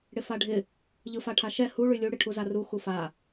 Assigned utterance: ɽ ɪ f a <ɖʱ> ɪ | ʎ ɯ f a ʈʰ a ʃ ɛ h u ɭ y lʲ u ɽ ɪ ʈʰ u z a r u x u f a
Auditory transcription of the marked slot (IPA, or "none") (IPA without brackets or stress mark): ɖʱ